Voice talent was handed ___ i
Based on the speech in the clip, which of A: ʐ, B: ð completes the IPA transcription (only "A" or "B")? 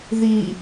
B